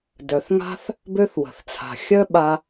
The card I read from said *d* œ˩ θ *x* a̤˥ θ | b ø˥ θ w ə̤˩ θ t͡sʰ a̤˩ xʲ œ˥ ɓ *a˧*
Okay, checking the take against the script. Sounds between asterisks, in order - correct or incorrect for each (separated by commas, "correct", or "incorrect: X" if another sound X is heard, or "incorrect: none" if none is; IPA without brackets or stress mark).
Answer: correct, incorrect: ŋ, correct